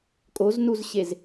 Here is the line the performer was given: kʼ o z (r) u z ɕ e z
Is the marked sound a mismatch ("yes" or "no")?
yes